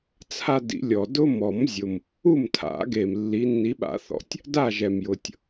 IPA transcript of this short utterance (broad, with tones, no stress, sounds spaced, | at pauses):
t͡sʰ a˦ d ḭ˨˩˦ lʲ ɔ˨˩ d ʊ˦ m ɔ˨˩˦ m zʲ ʊ˨˩ m | u˦˨ m tʰ a̰˨˩˦ ɡ e˨˩ m lː i˨˦ nː i˨˦ ɓ a̰˨˩˦ θ ɔ̰˨˩ tʲ | d a˦˨ ʒ ɛ˨˩ m j ʊ˨˩ tʲ